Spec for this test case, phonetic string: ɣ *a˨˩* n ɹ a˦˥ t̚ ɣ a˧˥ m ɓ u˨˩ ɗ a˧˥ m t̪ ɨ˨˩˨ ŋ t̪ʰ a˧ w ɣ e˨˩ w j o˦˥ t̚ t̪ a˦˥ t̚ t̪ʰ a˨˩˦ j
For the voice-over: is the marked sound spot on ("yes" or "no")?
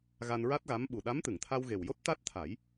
no